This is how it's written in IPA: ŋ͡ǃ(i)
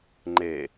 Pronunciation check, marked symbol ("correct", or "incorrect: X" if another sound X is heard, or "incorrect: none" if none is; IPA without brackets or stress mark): incorrect: e